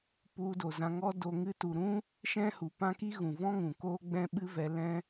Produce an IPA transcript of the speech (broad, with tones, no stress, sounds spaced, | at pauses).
p u˧ d o˨ z ã˧ ŋ ɔ˦ d o˧ ŋ ɨ˧ t u˨ ɾ ũ˦ | ʃ ɛ̃˦ h u˨ p ã˦ k i˦ ɣ ũ˨ v ɔ̃˦ ŋ ũ˨ k oː˦ ɡ͡b ɛ̃˦ ɓ ɨ˦ v ɛ˧ l ɛ̃˦